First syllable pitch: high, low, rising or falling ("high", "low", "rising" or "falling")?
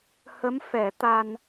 rising